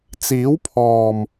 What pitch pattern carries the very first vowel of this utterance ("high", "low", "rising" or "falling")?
rising